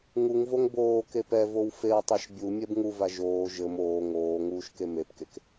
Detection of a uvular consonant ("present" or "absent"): absent